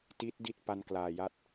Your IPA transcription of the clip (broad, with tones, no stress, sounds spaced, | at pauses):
t i˦˥ t̚ d i˥˩ t̚ p a˧ n k l aː˨˩ j a˦˥ t̚